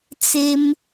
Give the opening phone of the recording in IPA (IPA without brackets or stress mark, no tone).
t͡s